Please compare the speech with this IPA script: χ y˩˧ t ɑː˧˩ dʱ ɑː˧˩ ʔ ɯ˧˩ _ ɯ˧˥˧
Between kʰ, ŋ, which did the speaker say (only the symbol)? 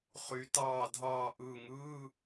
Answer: ŋ